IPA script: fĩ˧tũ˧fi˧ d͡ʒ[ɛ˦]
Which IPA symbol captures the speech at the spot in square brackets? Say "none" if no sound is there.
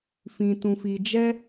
ɛ˦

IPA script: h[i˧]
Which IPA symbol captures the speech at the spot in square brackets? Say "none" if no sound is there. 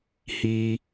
i˧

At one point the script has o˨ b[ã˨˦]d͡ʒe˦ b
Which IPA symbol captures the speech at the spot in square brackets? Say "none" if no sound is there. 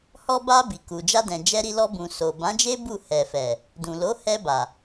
ã˨˦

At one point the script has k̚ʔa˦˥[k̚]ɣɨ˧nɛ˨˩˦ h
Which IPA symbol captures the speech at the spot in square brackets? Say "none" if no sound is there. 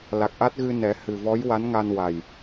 t̚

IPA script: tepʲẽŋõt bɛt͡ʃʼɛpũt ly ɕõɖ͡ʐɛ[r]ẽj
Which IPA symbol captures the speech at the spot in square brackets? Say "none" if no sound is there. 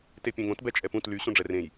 r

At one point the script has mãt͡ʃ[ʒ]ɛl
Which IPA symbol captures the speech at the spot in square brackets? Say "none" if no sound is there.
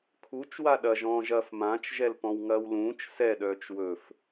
ʒ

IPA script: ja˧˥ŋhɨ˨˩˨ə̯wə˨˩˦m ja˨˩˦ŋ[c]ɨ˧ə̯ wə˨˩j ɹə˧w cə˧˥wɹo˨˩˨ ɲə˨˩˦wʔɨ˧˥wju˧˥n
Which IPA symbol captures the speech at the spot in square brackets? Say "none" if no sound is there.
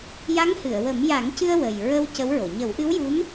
c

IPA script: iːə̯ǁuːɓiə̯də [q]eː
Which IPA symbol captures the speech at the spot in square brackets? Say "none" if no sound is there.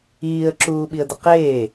q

